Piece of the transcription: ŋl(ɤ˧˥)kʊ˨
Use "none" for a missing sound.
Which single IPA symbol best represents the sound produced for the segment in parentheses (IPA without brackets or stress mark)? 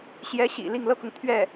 ɤ˥